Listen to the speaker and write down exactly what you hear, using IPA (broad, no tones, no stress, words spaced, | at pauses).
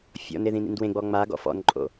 fʲɔ̰neðĩ nḭndwẽɡ͡bɔ ŋ͡maɡɔ̰ fɔ̰nǃʼo̰